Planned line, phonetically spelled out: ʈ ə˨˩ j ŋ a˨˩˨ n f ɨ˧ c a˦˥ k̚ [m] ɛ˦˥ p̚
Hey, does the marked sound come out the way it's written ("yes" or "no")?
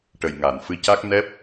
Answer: no